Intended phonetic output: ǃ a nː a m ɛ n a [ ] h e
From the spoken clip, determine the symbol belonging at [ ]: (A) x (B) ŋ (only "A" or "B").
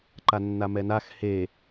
A